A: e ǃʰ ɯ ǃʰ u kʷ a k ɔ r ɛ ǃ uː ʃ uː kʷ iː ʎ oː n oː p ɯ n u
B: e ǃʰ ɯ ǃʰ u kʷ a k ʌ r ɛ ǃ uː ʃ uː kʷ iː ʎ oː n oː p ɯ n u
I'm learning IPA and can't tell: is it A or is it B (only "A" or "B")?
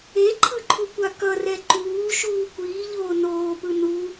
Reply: B